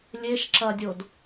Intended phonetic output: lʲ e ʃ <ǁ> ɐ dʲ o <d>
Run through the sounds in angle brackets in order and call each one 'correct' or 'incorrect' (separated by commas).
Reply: correct, correct